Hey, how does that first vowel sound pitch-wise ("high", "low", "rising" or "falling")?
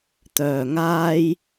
low